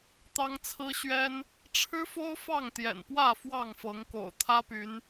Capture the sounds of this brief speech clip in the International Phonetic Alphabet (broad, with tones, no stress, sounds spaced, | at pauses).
t̪ ɑ˦ ŋ t͡sʰ ɹ̩˦ ɕ ɥ ɛ˦ n | ʈ͡ʂʰ ɻ̩˦ f o˦ ʊ̯ f ɑ˥˨ ŋ t̪ j ɛ̰˨˩ n p w ä˥˨ f w ɑ˥˨ ŋ f ɤ˨˦ ŋ k o̰˨˩ ʊ̯ t̪ʰ ä˦ p y˨˦ n